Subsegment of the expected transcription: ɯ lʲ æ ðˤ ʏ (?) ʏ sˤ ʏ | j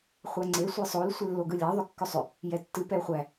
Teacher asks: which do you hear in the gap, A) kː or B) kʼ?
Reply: A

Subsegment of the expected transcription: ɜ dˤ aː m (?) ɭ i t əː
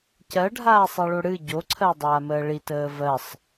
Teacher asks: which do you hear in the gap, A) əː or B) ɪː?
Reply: A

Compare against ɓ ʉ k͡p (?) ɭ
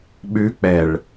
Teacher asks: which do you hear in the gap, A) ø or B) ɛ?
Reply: B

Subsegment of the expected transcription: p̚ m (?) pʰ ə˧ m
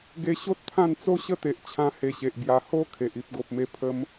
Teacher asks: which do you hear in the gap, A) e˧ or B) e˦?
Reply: A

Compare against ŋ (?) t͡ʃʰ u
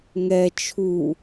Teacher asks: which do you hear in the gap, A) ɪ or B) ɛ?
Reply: B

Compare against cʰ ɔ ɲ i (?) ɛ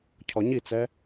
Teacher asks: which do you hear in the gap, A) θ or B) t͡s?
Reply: B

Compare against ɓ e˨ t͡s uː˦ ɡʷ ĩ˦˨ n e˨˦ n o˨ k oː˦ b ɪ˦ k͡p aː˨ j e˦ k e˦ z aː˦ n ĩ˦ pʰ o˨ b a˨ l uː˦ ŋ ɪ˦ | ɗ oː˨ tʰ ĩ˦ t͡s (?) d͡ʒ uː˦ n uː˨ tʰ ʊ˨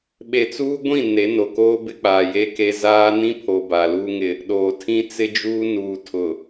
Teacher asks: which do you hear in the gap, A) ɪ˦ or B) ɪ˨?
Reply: A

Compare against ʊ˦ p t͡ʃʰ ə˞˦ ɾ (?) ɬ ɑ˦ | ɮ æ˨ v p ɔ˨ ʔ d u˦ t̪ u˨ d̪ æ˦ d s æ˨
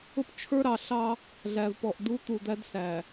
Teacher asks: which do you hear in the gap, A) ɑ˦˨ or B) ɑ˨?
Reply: B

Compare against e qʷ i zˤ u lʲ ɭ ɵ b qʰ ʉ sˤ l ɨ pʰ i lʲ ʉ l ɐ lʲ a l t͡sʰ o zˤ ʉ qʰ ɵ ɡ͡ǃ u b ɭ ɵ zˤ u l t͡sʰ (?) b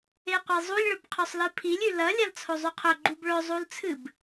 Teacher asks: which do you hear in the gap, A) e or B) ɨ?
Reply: B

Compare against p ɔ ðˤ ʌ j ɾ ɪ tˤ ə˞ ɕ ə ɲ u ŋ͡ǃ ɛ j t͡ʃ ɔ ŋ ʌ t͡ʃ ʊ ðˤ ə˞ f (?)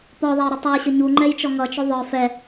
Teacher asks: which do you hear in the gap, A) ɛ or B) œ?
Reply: A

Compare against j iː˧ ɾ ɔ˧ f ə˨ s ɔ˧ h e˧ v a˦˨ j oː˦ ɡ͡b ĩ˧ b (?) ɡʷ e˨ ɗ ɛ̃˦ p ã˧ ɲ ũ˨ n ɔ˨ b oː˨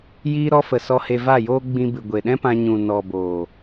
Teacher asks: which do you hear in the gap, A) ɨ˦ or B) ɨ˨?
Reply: B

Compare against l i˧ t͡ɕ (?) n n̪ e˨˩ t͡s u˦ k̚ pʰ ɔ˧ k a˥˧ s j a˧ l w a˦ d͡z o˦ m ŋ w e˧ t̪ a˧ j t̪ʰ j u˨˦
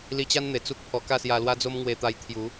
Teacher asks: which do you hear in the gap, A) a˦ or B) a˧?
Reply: A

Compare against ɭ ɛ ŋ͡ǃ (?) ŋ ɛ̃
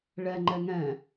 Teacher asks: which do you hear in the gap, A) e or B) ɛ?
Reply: B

